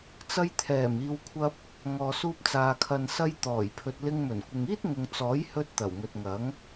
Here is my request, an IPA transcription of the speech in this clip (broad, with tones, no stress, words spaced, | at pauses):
t͡sɐ˧jt̪ʰɛː˨˩miː˨wkʷʰɐ˧p̚ | ŋɔː˨suː˧p̚t͡saː˨ kʰɐ˨nsɐ˧j t̪ɔː˨˩jpʰɵ˨t̚lɪ˧ŋ mɵ˨˩nkʷɪ˨ŋiː˥t̚ŋʊ˨ŋ t͡sɔː˨˥jhɵ˧t̚ t̪ɐ˨˩wŋɵ˨t̚ŋɐ˨˥ŋ